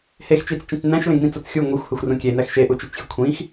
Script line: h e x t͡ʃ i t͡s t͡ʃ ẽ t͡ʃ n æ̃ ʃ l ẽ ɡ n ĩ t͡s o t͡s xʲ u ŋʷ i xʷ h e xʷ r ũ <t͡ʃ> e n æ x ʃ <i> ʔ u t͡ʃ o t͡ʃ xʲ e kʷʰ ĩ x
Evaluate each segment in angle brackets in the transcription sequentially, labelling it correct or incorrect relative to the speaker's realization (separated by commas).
incorrect, incorrect